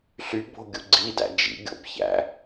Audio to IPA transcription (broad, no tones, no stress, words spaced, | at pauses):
ɬybo̤ ɡʲuɡ͡ǀidæ̰ d͡ʒḭɡʲo̰b çæ̰